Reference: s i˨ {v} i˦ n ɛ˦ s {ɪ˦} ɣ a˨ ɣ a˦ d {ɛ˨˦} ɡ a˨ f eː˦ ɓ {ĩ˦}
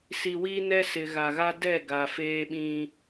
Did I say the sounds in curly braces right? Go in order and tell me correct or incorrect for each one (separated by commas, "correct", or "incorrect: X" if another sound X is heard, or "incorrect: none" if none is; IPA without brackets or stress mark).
incorrect: w, incorrect: ɪ˨, incorrect: ɛ˦˨, correct